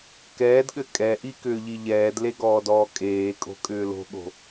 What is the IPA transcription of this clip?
kɛːdɠɘ kʼɛʔikʏːʎi ʎɛːdleɡɔːdɔː kʼeːkʼo̤kʼʏː lo̤ɠo̤

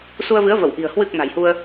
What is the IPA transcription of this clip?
su˧ə̯vɨ˨˦ə̯və˧˩wʔi̤˨˩ə̯ hwɨ˨˩k̚ na̤˨˩jhu˧ə̯

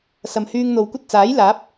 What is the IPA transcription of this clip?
sɐ˨mhyː˧ŋn̪o˨wkʷɐ˥t̚ t͡saː˨˥jlaː˨˥p̚

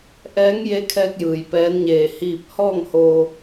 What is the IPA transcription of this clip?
ʔɛː˧˥ŋje˧˥kʰɛː˧k̚ jɯː˩j pɛː˧˥nɲeː˧˩ hiː˧˩p̚hɔː˥˨ŋ hoː˧

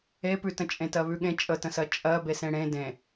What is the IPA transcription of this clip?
epʉtə̃t͡ʃʼẽ tɜβʉɠẽ t͡ʃʼətə̃sɜ t͡ʃʼɜ besẽɽẽ dẽ

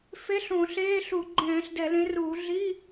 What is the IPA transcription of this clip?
fe˧˥˧ɬõ˧˩˧ɬeː˧˥˧ɬu˧˩˧ ɡ͡ǃɛ̃ː˧˩˧ɬdɛ˧˩˧lẽ˨˥ruː˧˩˧ ɮi˧˥˧

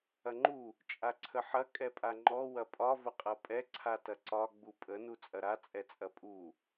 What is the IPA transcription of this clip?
ɐŋ͡ǃu | t͡ʃʼaǀʰəħɐ kʼɛpʼaŋ͡ǃɔ wɐpʼɒ vəqʼɐpʼɛ ǀʰatɐǀɒ ɡ͡bupʼə nut͡sʼɐɾa t͡sʼɛt͡sʼɐpʼu

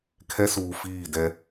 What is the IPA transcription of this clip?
kʰɛ˦suː˨fiː˦˨dɛ˦

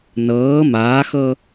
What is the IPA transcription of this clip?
nɤː maːxɤ

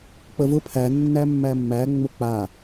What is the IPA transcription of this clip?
k͡pəvʊ pʰæ nːæmːæmːæ ŋ͡mʊk͡pa

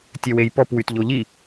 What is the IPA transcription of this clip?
tʲœwejpɔp wytʎoʎi

